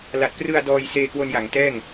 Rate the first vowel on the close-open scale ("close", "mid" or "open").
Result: open